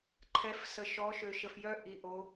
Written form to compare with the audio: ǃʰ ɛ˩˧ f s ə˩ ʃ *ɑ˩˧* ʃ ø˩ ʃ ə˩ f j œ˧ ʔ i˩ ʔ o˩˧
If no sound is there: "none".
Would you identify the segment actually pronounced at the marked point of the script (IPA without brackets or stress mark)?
ɔ˩˧